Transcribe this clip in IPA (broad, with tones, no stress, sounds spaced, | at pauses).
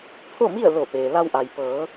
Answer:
pʰ o˥˨ m i˥˨ ə̯ l o˧˩ p eː˩ l a˧ w ʔ a˩ j p ɤː˩˧